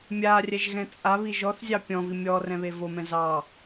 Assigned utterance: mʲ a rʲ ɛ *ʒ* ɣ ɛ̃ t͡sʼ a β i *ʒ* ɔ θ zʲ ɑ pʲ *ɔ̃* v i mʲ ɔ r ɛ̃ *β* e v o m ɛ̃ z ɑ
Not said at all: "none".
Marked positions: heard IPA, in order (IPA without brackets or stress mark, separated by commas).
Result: ʒ, ʒ, ɔ̃, β